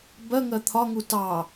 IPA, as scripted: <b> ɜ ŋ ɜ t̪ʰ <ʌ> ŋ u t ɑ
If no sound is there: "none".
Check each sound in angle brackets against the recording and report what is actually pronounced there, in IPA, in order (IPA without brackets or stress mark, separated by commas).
b, ɒ